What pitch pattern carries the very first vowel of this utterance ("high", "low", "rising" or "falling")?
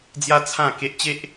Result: high